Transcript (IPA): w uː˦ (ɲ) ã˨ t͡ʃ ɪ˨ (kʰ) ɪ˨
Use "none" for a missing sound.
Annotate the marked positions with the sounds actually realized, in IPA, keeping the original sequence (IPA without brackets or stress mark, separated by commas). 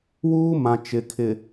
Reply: m, kʰ